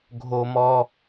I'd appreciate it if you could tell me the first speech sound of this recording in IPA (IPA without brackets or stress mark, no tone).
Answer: ɡʱ